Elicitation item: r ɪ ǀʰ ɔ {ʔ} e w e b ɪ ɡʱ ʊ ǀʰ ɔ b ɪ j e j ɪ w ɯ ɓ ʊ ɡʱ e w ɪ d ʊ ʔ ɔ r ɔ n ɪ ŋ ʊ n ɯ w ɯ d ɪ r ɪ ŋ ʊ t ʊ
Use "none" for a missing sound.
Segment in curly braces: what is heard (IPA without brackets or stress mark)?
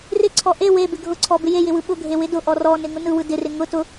ʔ